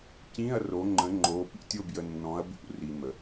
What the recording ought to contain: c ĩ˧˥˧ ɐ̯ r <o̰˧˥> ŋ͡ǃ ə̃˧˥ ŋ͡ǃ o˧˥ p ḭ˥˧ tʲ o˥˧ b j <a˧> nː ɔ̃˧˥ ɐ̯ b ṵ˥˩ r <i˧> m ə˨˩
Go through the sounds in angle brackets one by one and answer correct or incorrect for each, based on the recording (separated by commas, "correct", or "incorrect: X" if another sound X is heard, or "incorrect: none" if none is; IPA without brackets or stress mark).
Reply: incorrect: o˧˥, incorrect: ə˧, correct